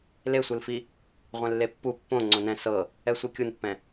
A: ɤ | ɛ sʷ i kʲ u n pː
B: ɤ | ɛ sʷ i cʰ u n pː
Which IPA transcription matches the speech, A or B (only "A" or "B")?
A